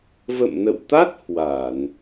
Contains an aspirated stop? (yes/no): no